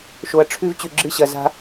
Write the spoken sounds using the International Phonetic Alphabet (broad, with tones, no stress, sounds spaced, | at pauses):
ʃ o˨ ɐ̯ ʈ͡ʂʰ ʉ˦ v t͡ɕ ʉ˨ ɡ͡ǁ ɨ˦˨ ɕ ɐ˨ z a̤˦